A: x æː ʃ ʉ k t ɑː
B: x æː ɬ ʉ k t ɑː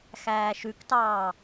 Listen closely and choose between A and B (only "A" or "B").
A